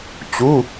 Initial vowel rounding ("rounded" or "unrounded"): rounded